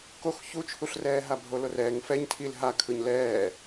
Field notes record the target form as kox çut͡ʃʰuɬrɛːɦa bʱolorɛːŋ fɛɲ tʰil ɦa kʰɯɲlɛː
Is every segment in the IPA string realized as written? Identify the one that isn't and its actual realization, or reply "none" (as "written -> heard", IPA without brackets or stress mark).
none